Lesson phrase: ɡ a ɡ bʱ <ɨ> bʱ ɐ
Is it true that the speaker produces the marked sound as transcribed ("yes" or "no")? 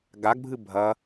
yes